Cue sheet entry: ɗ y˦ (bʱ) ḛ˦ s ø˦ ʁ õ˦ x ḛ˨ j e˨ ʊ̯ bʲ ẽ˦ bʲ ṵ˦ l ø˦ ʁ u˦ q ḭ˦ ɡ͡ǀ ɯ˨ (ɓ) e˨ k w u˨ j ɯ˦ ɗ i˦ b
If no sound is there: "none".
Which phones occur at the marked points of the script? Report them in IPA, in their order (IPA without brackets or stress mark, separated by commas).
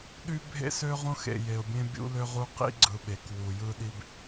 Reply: bʱ, ɓ